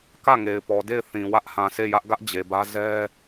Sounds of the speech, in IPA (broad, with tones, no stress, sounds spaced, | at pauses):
k ä˦˨ ŋ e˨ ɪ̯ p ɔ˨ d e˦˨ ɪ̯ θ ĩ˨ w ä˦ ʔ h ã˨ sʰ e˦˨ j ä˦ ʔ ɡ ä˦ ʔ d͡ʑ e˨ b ä˦ z ɛ˦